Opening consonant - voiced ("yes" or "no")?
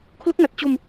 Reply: no